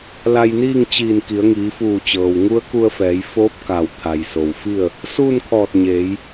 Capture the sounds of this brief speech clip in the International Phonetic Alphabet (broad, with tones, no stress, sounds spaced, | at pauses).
l a˧ j n iː˥˨ ŋ t͡ɕ iː˧˩ n k i˩˧ ə̯ ŋ iː˩˧ f uː˧˩ t͡ɕ ɤː˩ w ŋ u˧˥ ə̯ k u˧ ə̯ f ɛː˩˧ j f oː˧˥ p̚ k a˧˩ w t̪ʰ a˩ j s o˩ w f i˥˨ ə̯ | s uː˥˨ n kʰ ɔː˧˩ t̚ ɲ eː˩˧ j